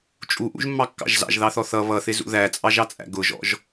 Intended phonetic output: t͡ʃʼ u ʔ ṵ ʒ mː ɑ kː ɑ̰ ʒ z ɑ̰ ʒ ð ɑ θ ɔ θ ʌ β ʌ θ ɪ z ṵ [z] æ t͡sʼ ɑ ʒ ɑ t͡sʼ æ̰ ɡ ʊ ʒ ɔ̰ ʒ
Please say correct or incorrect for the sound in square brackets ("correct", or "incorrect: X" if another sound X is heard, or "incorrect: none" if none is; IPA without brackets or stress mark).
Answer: incorrect: ð